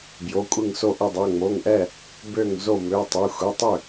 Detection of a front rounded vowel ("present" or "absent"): present